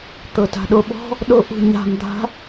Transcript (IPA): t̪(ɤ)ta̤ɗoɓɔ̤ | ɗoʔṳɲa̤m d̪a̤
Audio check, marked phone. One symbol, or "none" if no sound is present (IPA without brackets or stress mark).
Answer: ɤ